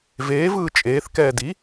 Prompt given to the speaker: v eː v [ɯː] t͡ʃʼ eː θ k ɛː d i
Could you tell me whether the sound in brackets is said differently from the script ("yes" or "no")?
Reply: no